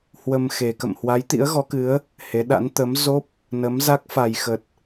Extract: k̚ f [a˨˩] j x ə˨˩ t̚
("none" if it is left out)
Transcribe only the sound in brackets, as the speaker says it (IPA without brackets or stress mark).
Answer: a˨˩